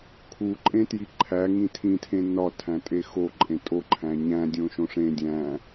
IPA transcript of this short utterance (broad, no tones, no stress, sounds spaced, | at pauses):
kʰ u ǃʼ ẽ t j i ǃʰ æ ŋ ĩ tʰ ĩ tʰ ẽ n ɒ tʰ æ̃ tʼ e x o ǃʼ ẽ tʼ o ǃʰ æ̃ ɲ æ̃ dʲ õ ʃ õ ʂ ẽ dʲ æ̃